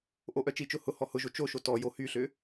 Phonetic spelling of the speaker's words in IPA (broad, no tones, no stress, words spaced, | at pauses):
ʔoʔœt͡ʃit͡ʃʊ hʊhɔ hʊʒo t͡ʃoʃo tɔ johyɬʏ